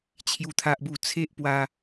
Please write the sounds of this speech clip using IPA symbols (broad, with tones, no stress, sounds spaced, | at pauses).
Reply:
t͡ɕʰ j u˦ t̪ʰ a˦ ʔ b u˥˧ t͡sʰ e˦ ʔ p w a˧